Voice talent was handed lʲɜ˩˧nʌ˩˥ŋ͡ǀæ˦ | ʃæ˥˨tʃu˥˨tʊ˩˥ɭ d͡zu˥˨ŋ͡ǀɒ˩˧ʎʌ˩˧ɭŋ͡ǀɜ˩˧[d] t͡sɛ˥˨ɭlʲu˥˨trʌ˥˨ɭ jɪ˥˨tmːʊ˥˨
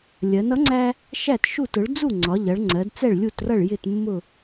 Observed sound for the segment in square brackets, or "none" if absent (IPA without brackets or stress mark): d